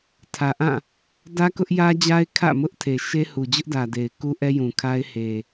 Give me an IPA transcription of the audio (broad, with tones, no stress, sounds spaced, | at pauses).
tʰ ä˨ ʔ ã˦˨ | d ä˦ k ʊ˦ ʔ j ä˦ d͡ʑ a˦ ɪ̯ kʰ ä̰˦˨ m ʊ˦ ʔ tʰ e˨ ʃ e˦ h u˨ d͡ʑ ʊ˦ ʔ d ä˨ d e˨ ɪ̯ k u˦ ʔ ɛ˦ j ũ˨ kʰ a˦ ɪ̯ h e˨